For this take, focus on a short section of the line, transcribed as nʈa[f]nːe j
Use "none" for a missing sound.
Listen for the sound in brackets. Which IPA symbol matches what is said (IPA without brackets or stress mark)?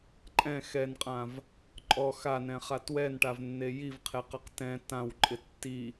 v